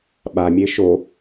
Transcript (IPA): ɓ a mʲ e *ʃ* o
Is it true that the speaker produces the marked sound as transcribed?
yes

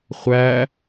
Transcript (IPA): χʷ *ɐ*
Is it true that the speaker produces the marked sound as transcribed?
no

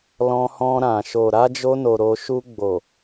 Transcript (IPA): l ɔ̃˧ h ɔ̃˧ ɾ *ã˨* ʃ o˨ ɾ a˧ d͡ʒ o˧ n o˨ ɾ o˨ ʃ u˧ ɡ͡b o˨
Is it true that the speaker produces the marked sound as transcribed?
yes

